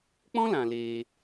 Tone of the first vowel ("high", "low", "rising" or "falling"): high